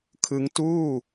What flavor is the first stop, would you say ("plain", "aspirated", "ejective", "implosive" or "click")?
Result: aspirated